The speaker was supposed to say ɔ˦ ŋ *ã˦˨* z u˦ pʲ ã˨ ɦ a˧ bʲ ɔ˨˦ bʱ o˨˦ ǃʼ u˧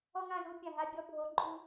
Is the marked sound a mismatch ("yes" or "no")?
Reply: no